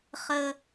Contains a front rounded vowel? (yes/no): no